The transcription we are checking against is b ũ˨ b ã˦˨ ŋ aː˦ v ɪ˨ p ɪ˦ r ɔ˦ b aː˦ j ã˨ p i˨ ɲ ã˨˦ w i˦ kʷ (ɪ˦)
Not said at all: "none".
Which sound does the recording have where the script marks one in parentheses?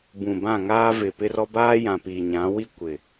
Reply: ɪ˨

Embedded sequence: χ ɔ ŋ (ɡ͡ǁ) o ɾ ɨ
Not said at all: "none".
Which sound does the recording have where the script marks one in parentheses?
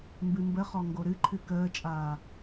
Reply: ɡ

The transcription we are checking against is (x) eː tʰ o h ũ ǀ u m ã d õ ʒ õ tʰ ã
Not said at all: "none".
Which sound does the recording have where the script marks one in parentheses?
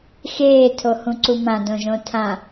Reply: x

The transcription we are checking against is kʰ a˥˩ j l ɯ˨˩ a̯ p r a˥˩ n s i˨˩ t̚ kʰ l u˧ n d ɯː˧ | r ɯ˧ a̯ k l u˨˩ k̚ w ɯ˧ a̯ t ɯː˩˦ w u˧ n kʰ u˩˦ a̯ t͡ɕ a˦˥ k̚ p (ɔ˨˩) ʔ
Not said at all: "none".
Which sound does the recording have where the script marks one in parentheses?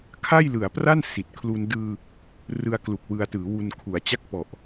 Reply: ɔ˨˩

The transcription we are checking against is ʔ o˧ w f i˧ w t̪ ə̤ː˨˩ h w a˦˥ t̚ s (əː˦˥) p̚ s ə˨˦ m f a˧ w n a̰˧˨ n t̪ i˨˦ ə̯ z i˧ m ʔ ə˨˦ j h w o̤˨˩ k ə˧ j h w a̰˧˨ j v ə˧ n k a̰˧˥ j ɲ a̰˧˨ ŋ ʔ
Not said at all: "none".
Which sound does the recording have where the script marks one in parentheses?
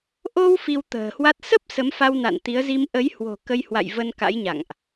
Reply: ə˦˥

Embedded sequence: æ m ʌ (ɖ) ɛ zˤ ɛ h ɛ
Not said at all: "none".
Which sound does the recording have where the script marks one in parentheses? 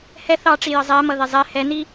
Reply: ð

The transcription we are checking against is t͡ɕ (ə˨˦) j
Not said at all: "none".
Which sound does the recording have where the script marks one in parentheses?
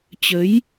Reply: ə˨˦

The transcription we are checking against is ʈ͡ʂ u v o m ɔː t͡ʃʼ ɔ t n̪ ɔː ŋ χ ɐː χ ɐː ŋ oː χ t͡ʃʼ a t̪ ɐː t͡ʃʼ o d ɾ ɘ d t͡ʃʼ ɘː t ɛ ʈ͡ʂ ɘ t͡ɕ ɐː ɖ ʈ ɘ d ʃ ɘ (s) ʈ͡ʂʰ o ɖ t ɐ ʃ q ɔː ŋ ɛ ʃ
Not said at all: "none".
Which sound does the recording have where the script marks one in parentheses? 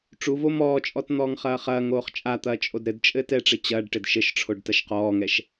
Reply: ʃ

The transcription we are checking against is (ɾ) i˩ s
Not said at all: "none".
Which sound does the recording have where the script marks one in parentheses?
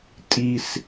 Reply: tʼ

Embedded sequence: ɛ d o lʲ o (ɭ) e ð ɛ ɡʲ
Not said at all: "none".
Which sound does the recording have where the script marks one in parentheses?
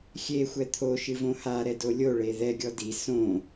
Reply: ɭ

